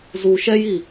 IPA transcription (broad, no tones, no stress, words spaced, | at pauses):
zu ʃɛji